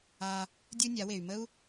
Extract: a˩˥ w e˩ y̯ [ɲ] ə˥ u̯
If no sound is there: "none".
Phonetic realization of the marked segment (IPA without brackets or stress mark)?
m